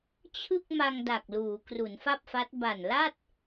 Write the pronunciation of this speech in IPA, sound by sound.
t͡ɕʰ ɯ˥˩ k̚ m a˧ ŋ d a˨˩ k̚ l uː˩˦ k r u˩˦ n f a˥˩ p̚ f a˦˥ t̚ b a˨˩ n l a˥˩ t̚

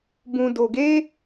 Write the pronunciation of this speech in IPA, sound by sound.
b ũ˨ d o˨ ɡ e˦

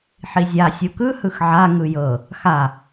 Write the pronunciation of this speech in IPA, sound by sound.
ħ i zʲ a sʲ u k ɯ h ɯ x ʕ a ŋ ɯ j ɤ | x a

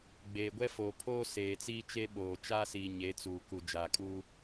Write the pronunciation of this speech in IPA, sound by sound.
ɡ͡b eː˨ ɡʷ ɛ˦ f oː˨ pʰ oː˦ s eː˨ t͡s iː˦ t͡ʃ e˦ ɓ oː˨ t͡ʃ aː˦ s iː˨ ɲ e˨˦ t͡s uː˨ k u˨ d͡ʒ aː˨ kʼ uː˦

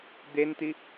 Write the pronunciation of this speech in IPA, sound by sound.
d̪ e n t̪ i

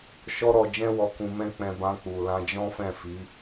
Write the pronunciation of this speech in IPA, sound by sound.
ʃ ɔ˦ ɾ ɔ˧ d͡ʒ ɛ̃˦ w ɔ˧ k ũ˧ m ɛ̃˦ k͡p ɛ̃˧ b ã˧ k͡p u˨ l ã˧ d͡ʒ ɔ̃˦ f ɛ̃˦˨ f i˨˦

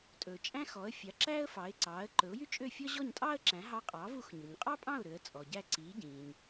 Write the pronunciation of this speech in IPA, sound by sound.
tʼ ɵː˩ t͡ʃʼ æ̃˥ x ɔ˩˥ ə̯ fʲ ɑ˩˥ ǁ æ˥ ə̯ f ɑ˩˥ ɪ̯ ǀ ɑː˩˥ ə̯ ǃ ɵ˩˥ ʊ̯ j y˥ t͡ʃʼ ø˥˩ fʲ ɔ˥ ʑ ɔ˥˩ ɲ tʼ ɑː˥ ə̯ ǁ æ̃˩˥ ɦ ɑ˧ qʼ ɑː˩˥ v u˩˥ x ɲ ɵ˩ ɲ qʼ ɑ˥ pʼ ɑ̃˥˩ ʊ̯ ɾ ø˩˥ ə̯ t͡sʼ ɔ˩ ɟ æ˥˩ ǀ iː˩˥ ɟ ĩː˩ ɲ

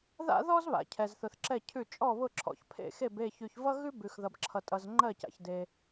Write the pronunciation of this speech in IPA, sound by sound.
ð a̰˥ ð ɔ˥ z β a̰˩ cʰ ɛ˩ z θ ʊ˩ θ ǁ ɛ˧˩ cʰ ʉ˧˩ t͡ʃʼ ɔ˧˩ β ʊ˧˩ ǁʰ ɔ̰˩ ç pʰ ḛ˧˩ x e˧˩ b e˧˩ ç ʉ˩ ç v ʌ˥ ɣ ʉ˥ b ʉ˩ x ð ʌ˩ b ǁʰ ʌ˩ tʼ ʌ˩ z ŋ͡ǃ ɜ˧˩ c a̰˩ ç d e˩

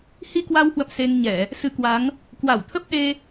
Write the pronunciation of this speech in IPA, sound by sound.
h i˧ k w a˧ w h w ə̰˧˨ m s e˧ ŋ ɲ ɛ˧˩˨ | s ɨ˨˦ k w a˨˦ ŋ | k w a˧˩ w t̪ʰ ə˦˥ p̚ ɗ e˧

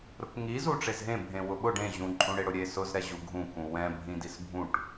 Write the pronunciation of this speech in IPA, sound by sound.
ɾ ʊ k ŋ i z u ʈ͡ʂ e z ɦ ẽ bʱ ẽ w ʊ ɓ ʊ ɖ ẽ ʑ ũ ǃʼ ũ ɽ e ɽ ʊ ɾʲ e s ʊ z ɾ ɛ ʑ u ɡʱ ũ k ũ w ɛ̃ bʱ ĩ d i s bʱ ũ ʈ

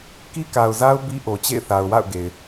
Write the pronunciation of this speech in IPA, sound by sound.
k i˦ k a˨ ʊ̯ z a˦ ʊ̯ b i˦ ʔ o˨ t͡ɕ ḛ˦˨ ɪ̯ θ a˨ ʊ̯ w a̰˦˨ ʊ̯ ɡ e˨ ɪ̯

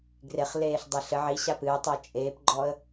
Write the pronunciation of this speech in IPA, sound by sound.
ɡ r e χ l eː ɬ dˤ e ɬ ɘ ʕ i ɕ a p ɨː tˤ ɛ t͡ʃʼ eː p ɡ͡ǃ ɔ ə̯

